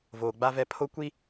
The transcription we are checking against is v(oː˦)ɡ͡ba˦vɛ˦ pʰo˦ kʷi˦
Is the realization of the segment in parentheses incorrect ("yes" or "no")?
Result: yes